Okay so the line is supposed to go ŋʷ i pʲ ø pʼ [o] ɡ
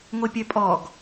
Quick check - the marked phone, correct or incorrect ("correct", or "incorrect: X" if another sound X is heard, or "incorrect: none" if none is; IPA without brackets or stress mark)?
incorrect: ɔ